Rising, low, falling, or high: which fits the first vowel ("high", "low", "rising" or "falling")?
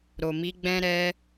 low